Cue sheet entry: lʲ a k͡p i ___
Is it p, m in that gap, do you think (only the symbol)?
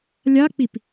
p